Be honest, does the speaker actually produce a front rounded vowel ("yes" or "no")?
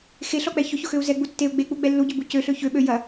yes